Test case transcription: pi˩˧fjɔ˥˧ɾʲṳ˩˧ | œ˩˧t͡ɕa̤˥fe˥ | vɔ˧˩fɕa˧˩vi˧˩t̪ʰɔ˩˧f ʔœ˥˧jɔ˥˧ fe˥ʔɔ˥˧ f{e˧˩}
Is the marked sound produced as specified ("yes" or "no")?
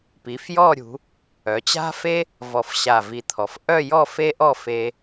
no